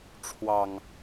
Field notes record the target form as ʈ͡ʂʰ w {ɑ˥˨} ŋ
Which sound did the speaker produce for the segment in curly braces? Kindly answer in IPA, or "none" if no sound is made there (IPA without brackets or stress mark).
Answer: ɑ˨˩